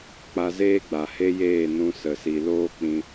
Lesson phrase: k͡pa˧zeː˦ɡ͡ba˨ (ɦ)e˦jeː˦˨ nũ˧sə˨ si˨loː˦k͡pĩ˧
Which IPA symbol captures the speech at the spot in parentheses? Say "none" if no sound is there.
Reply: h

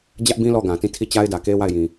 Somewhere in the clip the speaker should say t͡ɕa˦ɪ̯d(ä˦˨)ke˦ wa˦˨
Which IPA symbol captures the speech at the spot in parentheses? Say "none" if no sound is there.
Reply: ä˨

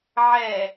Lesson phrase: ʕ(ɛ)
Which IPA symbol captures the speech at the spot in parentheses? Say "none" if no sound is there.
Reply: ɛ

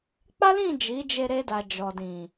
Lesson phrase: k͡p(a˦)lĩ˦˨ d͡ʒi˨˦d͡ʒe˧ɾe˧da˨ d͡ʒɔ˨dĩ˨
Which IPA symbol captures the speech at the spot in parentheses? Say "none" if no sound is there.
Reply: a˦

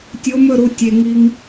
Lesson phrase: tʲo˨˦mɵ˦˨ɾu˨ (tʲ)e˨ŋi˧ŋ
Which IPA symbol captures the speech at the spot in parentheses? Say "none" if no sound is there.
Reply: tʲ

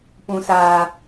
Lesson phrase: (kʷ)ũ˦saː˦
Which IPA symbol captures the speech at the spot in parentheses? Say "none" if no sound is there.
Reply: p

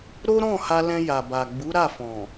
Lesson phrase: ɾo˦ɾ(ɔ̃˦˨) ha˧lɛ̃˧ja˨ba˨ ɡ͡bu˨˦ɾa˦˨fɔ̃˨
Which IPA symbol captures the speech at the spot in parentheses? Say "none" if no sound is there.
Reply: ɔ̃˦˨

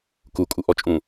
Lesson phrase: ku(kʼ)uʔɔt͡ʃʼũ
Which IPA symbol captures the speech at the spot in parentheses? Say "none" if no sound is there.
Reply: kʼ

